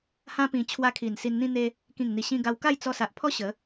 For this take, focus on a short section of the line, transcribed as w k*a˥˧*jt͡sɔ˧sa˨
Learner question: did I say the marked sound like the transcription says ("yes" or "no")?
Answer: yes